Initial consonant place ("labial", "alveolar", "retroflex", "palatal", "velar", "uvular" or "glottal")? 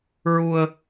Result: alveolar